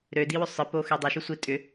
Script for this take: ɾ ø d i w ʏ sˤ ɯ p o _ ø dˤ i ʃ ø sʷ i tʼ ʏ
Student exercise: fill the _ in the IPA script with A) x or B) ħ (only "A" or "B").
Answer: A